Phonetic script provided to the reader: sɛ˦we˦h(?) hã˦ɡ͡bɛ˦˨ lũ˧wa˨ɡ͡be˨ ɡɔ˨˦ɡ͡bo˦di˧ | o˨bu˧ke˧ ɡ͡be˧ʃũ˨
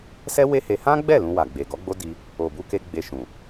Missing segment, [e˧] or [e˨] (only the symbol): e˧